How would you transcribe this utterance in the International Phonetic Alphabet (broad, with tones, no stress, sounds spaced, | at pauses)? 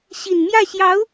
ɕ i˨˩ n m j ä˥˩ ɕ j ɑ˧˥ ʊ̯